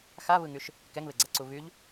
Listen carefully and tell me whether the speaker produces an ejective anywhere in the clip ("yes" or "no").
no